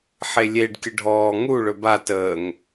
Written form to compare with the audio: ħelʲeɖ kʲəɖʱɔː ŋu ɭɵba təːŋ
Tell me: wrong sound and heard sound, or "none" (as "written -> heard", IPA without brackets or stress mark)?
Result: none